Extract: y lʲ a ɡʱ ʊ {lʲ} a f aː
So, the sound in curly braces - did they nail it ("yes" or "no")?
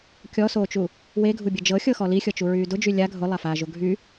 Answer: no